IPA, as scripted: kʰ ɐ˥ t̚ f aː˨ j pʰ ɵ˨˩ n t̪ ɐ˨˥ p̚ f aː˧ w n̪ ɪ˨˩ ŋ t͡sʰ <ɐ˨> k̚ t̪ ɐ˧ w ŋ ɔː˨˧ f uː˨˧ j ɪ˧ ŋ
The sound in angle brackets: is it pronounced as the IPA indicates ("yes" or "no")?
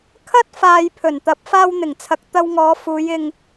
yes